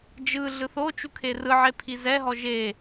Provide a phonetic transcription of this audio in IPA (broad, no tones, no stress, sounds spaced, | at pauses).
d͡ʒ ɯ ɮ ɯ θ o t͡ʃ u kʰ e r ɯ ʕ e pʰ i z ɛ ɦ ɔ ʒ e